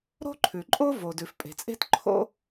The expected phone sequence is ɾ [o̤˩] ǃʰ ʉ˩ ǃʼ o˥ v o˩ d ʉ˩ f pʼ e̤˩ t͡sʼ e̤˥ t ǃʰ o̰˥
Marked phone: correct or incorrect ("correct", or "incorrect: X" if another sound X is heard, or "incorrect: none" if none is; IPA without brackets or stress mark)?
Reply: incorrect: o̤˥